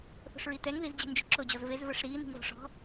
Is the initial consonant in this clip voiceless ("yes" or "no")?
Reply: yes